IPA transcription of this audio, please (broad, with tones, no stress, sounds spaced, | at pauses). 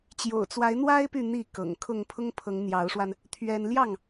t͡ɕ j o̰˨˩ ʊ̯ t͡s w a˨˦ ɪ̯ n̪ w a˦ ɪ̯ p y˥˨ n̪ i˥˨ k ɤ̰˨˩ ŋ kʰ ʊ˥˨ ŋ pʰ ʊ˦ ŋ pʰ ɤ˨˦ ŋ n̪ j ɑ˨˦ ʊ̯ ʂ w a˧ n | t̪ʰ ɥ ɛ˦ n l j ɑ˥˨ ŋ